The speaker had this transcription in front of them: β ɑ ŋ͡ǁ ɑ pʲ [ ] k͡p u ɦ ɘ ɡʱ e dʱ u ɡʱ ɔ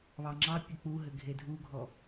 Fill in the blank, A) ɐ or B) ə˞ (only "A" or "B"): A